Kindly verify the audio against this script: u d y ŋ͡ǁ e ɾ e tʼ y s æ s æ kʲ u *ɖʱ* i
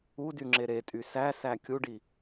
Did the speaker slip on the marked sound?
yes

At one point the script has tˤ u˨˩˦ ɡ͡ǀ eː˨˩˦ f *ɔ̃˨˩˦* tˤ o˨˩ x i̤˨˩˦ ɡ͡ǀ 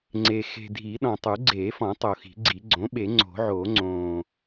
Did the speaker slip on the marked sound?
no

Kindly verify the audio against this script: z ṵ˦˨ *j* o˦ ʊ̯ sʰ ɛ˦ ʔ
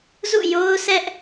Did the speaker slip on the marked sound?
no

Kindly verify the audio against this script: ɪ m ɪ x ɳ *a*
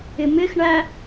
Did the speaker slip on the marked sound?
yes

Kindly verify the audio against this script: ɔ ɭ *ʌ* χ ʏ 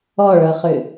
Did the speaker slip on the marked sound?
no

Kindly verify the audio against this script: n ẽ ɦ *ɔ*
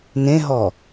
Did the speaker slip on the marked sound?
no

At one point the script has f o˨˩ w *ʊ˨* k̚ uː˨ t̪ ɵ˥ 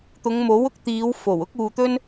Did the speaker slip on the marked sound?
yes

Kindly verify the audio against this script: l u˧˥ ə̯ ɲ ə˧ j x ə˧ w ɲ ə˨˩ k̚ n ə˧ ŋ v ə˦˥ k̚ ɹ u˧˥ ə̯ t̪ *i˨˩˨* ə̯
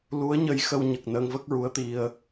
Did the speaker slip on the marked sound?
yes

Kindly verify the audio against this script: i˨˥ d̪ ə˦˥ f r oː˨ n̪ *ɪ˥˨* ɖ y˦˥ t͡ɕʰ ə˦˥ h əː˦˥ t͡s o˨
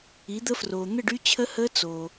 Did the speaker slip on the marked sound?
yes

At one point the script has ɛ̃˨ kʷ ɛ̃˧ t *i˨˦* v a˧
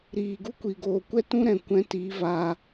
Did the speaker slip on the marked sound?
no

